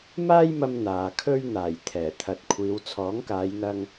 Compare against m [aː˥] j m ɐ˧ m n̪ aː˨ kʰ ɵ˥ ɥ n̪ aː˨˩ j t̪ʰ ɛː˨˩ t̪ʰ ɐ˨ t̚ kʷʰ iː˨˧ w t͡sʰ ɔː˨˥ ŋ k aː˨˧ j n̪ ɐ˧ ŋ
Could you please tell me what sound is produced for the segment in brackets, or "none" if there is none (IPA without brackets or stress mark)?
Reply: aː˥